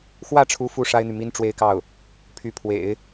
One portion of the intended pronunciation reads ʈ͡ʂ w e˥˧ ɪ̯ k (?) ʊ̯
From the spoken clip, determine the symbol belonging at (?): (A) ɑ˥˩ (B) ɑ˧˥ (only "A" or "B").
A